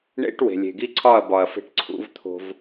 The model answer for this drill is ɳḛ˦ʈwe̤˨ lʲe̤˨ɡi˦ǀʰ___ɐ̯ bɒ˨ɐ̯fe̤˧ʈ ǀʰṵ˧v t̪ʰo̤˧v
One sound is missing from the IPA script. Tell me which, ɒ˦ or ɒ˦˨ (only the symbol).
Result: ɒ˦˨